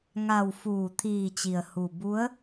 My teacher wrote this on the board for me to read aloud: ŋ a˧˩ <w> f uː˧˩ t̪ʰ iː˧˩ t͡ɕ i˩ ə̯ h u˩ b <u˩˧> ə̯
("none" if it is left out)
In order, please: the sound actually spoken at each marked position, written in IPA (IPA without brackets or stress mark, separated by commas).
w, u˧˥